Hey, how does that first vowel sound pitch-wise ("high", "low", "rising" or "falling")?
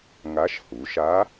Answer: rising